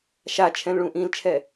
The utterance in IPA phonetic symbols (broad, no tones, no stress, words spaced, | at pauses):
ʃat͡ʃʰɛ̃lɭũ ʔĩlt͡ʃʰɛ